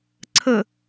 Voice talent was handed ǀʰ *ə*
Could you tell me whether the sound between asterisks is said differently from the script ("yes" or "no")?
no